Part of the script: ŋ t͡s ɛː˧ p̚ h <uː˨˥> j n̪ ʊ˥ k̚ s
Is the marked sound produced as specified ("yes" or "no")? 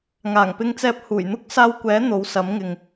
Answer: no